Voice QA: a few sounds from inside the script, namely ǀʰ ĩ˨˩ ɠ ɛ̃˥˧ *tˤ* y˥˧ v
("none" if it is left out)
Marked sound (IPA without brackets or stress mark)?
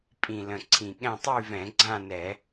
tˤ